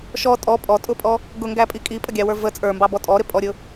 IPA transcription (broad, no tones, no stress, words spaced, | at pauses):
ʃɔ tʼɔ pʼɔtʼʊpʼɔ | ɡʊŋɡæpʼi kʼipʼəɡʲɑwə˞ və t͡sʼə˞mbɑbɔ tʼɔɾɪpʼɔɾʲʊ